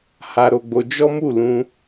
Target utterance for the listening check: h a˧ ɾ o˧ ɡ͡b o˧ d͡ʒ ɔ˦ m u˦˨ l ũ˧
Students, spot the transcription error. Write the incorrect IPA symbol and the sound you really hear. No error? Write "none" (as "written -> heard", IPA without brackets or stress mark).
none